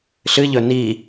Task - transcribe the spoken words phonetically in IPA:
ɬ ɨ ʎ ɵ n i

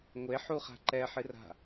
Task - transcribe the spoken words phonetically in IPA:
ŋʷ e ħ u χ a̤ ǃ ɛ ħ ɨ r a̤

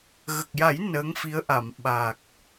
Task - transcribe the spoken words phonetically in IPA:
ɣ ə˨˩ k̚ j a˨˩˦ j n əː˧˥ ŋ f i˧˥ ə̯ ʔ a˨˩˨ m ɓ a˨˩ k̚

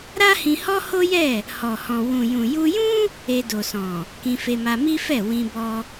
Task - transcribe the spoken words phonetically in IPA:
ɾ a˦ h ĩ˧ h ɔ˦ h o˦ j ɛ˦˨ | h ɔ˨ h ɔ̃˨ w ũ˨ j ũ˨ j u˧ j ũ˦ | e˧ d o˨ s ɔ̃˨ | k ĩ˧ f e˧ m a˧ m i˦ f ɛ˦˨ w ĩ˧ b ɔ˧

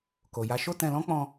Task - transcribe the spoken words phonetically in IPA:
k o˨ j a˨˦ ʃ o˦ t ɛ̃˧ l ɔ̃˦ k͡p ɔ̃˧

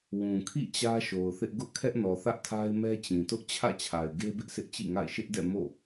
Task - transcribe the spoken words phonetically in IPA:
w ũ˨ kʰ ḭ˦˨ t͡ɕ ä˦ ʃ o˨ ʊ̯ θ ɪ˦ ʔ ɡ ʊ˦ ʔ kʰ ɛ˦ ʔ n ɔ˨ θ ä˦ ʔ tʰ a˦ ɪ̯ m ɛ˦ t͡ɕ ĩ˨ t ʊ˦ ʔ t͡ɕʰ ä̰˦˨ t͡ɕʰ a˨ ɪ̯ ɡ e˦ b ɪ˦ ʔ sʰ ɪ˦ ʔ t͡ɕ ḭ˦˨ ŋ a̰˦˨ ɪ̯ ʃ ɪ˦ ʔ d ɛ̰˦˨ m o̰˦˨

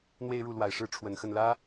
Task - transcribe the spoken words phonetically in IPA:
n̪ w e˥˧ ɪ̯ ɻ u˥˩ l w a˨˩ ɪ̯ ʂ ɻ̩˥˩ ʈ͡ʂʰ w ə˨˩ n x ə˥˩ n l ä˥

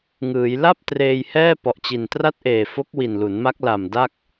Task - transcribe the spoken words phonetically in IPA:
ŋ ɯː˩˦ j l a˥˩ p̚ t r eː˧ j h ɛː˥˩ p ɔ˨˩ ʔ t͡ɕ i˨˩ n t r a˥˩ t̚ ʔ eː˨˩ f o˦˥ k̚ w i˨˩ n l u˩˦ n m a˦˥ k̚ l a˨˩ m d a˥˩ k̚

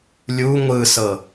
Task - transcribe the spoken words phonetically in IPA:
lʲ u ŋʷ ɯ s ɤ

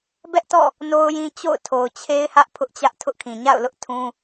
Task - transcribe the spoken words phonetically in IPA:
b ɛ˦ ʔ t ɔ̰˦˨ | n o˦ ʊ̯ j ĩ˦ t͡ɕ o̰˦˨ ʊ̯ tʰ o˨ ʊ̯ t͡ɕʰ e˦ ɪ̯ h ä˦ ʔ pʰ ʊ˦ ʔ t͡ɕ ä˦ ʔ tʰ ʊ˦ ʔ kʰ ĩ˨ ɲ a̰˦˨ ʊ̯ l ʊ˦ ʔ tʰ ũ˦

